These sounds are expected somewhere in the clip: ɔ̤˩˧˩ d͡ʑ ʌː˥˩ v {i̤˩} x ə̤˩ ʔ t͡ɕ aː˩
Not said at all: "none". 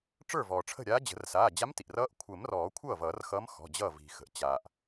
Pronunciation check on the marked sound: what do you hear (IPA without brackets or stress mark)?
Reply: i̤˩